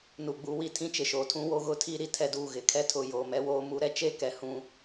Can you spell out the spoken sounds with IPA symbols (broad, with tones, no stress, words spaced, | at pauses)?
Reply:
nu˨ɡ͡bu˨˦wi˨ tʰĩ˦t͡ʃɪ˨ʃoː˨ tʰũ˦woː˦ɣʊ˦tʰiː˦ ɾi˨tʰɛ˦duː˦˨ ɣɪ˨kʰɛ˦tʰʊ˨ joː˨mɛ˦woː˦mu˦ ɾɛ˦t͡ʃe˦˨kɛ˨ hũ˦